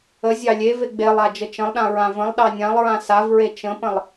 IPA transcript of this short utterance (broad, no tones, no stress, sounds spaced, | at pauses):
ə zʲ ɑ lʲ e v e ɡ͡b e lˠ a d͡ʒ ə t͡ʃ ə̃ lˠ ɗ ã ɹ ã v ə̃ lˠ ɗ ɑ nʲ ã lˠ ɹ ã s a v ɹ e t͡ʃ ə̃ p ə̃ lˠ